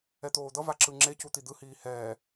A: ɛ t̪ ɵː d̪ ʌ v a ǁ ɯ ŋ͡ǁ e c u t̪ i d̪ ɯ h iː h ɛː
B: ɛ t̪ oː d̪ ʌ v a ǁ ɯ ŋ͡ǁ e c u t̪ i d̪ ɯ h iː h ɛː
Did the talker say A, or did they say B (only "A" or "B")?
B